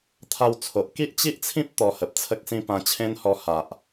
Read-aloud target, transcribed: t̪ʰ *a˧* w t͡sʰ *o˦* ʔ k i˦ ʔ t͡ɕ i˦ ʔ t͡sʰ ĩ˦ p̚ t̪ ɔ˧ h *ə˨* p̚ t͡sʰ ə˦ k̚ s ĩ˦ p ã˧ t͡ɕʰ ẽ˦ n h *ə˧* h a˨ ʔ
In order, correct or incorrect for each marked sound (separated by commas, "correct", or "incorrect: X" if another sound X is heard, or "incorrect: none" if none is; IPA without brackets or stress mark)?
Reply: correct, incorrect: o˨, correct, incorrect: ɔ˧